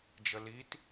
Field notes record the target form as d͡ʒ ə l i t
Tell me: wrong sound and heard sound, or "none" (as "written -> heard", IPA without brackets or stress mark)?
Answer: none